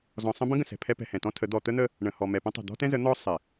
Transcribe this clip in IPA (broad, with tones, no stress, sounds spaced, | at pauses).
z ɔ̃˨ sˤ ə̃˦ b ə̃˦ ɡ ə̃˨ s ɛ̤˨ pʰ ɛ˦ p ɛ̤˨ h ɛ̃˨ t ɔ̃˦ tʰ ə˨˦ d̪ ɔ˨ t̪ ə˦ n̪ ə˦ | ɳ ə̃˨ h ɔ˨ m ɛ˨ p ə̃˦ tˤ ə̤˨ d̪ ɔ̤˦ t ɛ̃˦ z ə˨˦ n̪ ɔ˦ sˤ ɪ˨